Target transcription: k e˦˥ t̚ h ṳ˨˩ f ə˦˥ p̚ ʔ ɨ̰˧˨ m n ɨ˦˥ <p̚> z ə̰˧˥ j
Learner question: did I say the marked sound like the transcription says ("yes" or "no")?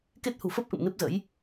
yes